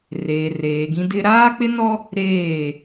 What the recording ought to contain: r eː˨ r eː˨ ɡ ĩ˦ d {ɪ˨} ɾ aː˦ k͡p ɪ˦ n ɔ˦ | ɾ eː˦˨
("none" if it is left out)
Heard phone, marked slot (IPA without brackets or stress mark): ɪ˦